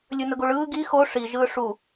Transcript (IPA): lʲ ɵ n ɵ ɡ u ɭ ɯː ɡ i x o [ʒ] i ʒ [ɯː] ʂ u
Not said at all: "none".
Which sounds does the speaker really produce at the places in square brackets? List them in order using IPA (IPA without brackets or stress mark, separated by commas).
ʂ, ɯː